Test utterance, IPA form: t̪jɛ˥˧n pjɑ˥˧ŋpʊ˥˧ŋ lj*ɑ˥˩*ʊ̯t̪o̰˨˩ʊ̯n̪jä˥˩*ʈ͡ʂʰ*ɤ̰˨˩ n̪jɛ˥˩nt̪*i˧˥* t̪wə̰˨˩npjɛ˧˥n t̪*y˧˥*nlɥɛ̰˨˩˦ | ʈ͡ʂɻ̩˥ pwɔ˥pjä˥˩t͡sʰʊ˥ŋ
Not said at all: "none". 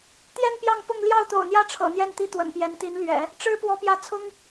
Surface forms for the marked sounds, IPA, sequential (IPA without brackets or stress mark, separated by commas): ɑ˥˩, ʈ͡ʂʰ, i˥, i˧˥